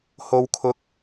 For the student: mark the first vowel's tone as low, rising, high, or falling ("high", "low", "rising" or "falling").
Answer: high